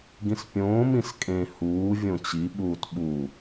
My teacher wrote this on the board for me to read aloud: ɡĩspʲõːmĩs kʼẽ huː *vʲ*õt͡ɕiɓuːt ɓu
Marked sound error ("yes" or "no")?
no